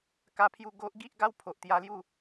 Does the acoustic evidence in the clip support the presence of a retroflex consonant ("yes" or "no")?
no